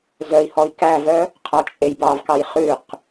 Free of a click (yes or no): yes